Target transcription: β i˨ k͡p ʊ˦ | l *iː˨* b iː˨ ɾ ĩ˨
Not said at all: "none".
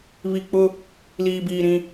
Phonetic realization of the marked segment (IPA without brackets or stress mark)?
iː˨